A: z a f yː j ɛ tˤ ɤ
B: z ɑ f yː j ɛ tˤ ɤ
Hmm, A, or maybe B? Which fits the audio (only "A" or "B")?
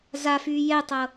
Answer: A